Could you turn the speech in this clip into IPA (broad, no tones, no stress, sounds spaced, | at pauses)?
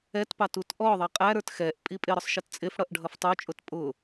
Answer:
ɛ t p ɑ t u t ʔ ɔ ðˤ ʌ qʼ æ ɾ ə˞ t x ɛ ʔ pʼ i pʼ ɪ ɾ ʊ sˤ ʃ ɪ t t͡sʼ ɪ f ɽ ʌ ʔ ɖʱ ʌ f tˤ u t͡ʃʼ ʊ t pʼ ʊ